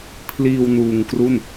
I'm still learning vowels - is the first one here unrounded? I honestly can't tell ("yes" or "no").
yes